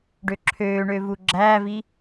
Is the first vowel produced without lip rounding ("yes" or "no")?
no